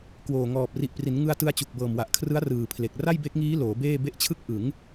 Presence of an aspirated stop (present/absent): present